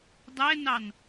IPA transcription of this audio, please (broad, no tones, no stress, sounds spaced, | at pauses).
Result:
dˤ ɛ n ɑ n